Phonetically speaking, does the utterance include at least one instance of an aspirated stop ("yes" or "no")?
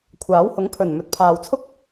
yes